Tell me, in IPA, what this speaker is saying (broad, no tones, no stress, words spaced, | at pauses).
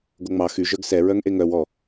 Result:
ɡoŋ͡mɑ xy ʒœɡsɛ ɹœŋʔeŋœw ɔ